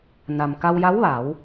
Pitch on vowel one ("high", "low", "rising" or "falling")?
low